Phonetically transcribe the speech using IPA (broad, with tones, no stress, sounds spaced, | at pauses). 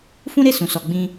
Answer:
f ũ˦ ɾ e˦˨ s ũ˨ s ɔ˨ ɡ͡b ĩ˧